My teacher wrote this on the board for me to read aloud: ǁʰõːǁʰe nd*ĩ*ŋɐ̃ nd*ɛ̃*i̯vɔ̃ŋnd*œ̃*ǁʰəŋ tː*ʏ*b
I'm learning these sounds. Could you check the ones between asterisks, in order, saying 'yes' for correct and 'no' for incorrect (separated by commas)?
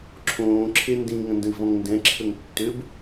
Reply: yes, no, no, yes